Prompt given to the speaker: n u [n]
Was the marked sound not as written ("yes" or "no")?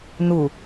yes